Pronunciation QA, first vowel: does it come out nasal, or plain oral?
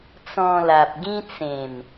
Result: nasal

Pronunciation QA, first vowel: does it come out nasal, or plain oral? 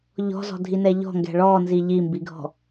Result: oral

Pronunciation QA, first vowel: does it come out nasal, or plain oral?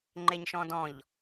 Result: oral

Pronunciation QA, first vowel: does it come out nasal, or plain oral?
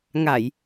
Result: oral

